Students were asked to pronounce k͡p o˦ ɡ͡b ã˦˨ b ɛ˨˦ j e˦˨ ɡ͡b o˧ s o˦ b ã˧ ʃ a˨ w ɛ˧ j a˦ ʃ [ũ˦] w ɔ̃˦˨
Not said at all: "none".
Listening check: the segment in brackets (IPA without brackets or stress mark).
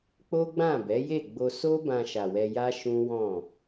ũ˦